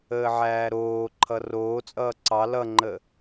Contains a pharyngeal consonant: yes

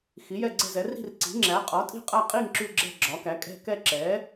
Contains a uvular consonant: yes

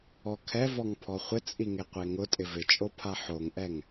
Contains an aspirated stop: yes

